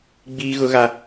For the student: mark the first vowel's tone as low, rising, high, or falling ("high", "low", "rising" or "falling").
high